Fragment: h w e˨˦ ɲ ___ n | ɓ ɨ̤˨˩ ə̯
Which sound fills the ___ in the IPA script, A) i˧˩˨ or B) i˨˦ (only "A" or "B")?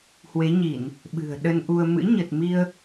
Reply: A